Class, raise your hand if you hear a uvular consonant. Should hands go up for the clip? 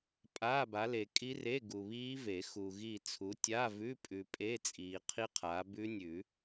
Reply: yes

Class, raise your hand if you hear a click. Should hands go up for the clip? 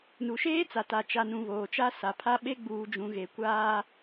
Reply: no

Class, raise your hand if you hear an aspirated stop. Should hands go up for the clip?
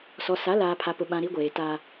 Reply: yes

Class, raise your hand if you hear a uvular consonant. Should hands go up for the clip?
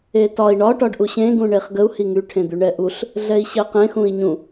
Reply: yes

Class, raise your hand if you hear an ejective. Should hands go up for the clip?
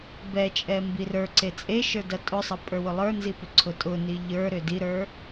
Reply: yes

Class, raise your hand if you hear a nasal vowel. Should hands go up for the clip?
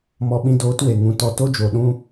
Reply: yes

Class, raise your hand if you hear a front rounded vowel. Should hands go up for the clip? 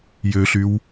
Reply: yes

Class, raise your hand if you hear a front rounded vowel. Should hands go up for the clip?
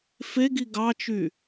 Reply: yes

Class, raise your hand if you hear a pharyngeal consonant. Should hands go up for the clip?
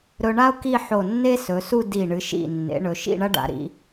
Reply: yes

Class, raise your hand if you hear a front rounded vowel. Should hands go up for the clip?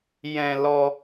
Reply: no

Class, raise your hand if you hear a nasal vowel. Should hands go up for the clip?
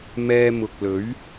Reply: no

